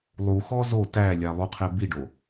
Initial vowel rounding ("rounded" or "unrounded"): rounded